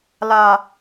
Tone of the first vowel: low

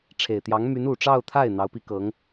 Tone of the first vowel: low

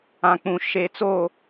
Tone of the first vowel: low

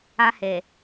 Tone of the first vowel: high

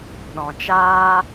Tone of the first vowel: low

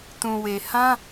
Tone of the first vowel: low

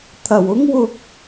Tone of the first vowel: low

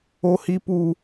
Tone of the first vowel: high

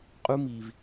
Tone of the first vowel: high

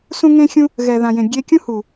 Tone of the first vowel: high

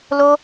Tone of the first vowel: high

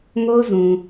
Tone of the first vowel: high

